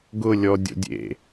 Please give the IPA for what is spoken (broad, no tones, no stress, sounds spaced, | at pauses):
ɡ ʊ lʲ ɔ dʲ o̰ dʲ ḛ